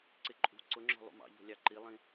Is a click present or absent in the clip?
present